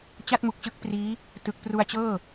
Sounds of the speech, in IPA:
t͡ɕ a˥˩ t̚ m u˨˩ k̚ t͡ɕ ɯ˦˥ k̚ p r iː˦˥ | t ɯ˨˩ k̚ p r u˧ a̯ t͡ɕ ɤː˥˩

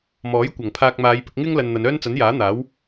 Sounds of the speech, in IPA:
m ɔː˨˥ j kʷ ɐ˨˩ ŋ pʰ aː˧ k̚ m aː˨˧ j p ɪ˧ k̚ ŋ ɪ˥ ŋ l ɐ˧ n n̪ ɐ˨˧ n œː˥ n t͡s ɐ˨˥ n j aː˨˥ n̪ aː˨˥ w

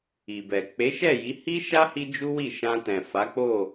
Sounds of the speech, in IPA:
i˨ b ɛ˨ k͡p e˨˦ ʃ ɛ˦˨ j i˨˦ h i˦ ʃ a˦ h i˦ d͡ʒ u˦ w i˦˨ ʃ ã˧ t ɛ̃˨ f a˨˦ k͡p o˦˨

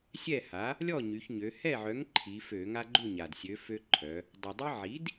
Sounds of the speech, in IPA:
sʲ ɛ˥˩ h a˩˥ | lʲ ɔ˥˩ ɲ y˩˧ ç ɲ ø˩˧ h ɛ˥˩ ʕ œ˩˥ ŋ ǃʰ i˩˧ f ø˧˩˧ ŋ a˦ ɡ͡ǃ u˥˩ ɲ a˩ d sʲ ø˩˥ f ø˦ ǃʰ œ˩˧ | dˤ a˩ dˤ i˦ ʕ i˩˥ d

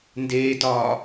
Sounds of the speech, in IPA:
n d eː t ɒː

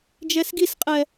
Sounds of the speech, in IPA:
d͡ʒ ɛ s ɡ i s qʼ ɛ

